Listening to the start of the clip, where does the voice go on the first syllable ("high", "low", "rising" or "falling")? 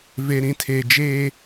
high